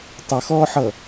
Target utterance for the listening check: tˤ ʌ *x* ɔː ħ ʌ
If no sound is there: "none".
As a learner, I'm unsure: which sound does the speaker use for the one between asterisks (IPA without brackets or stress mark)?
x